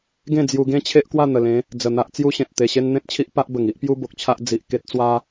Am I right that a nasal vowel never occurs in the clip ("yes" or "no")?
no